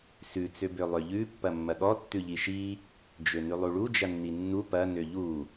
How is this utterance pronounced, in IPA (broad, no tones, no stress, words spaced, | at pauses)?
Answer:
sʉ t͡søbølˠøʎʉ pːɐmːɐɠɔ tːʉʎiʃi | d͡ʒønʉlˠuɭu d͡ʒɐnːinːu pɐ nøʎu